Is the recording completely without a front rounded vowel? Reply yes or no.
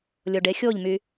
no